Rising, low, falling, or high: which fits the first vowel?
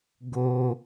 low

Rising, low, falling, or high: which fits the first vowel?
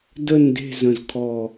falling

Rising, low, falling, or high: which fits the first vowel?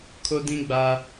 high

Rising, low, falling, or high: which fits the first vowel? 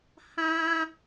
high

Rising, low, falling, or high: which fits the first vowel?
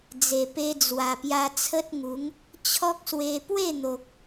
low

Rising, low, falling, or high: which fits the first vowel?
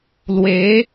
rising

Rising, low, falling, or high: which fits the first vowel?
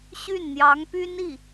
falling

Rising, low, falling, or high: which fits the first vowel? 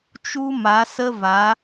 high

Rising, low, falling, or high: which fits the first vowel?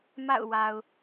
falling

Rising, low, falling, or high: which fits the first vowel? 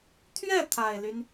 falling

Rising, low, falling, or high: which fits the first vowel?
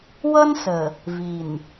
high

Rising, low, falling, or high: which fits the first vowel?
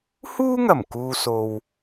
high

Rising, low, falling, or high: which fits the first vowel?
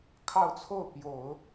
falling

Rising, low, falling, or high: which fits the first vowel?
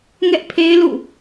high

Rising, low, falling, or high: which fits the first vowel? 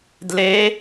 rising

